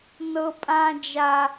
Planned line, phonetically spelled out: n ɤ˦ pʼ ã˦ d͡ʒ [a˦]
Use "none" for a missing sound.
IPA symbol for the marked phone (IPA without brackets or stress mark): a˦